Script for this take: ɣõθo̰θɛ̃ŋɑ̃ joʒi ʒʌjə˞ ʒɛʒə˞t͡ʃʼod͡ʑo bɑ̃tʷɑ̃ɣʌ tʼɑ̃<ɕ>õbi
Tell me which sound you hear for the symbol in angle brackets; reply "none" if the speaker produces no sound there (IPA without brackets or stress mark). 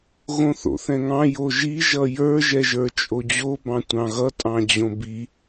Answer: d͡ʑ